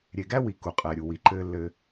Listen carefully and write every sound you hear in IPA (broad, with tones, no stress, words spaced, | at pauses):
ɾʲe˨ɡæ˦wi˨ ku˨qʼɛː˨ɾʲu˨ wi˨ǃɘː˦lːɘ˦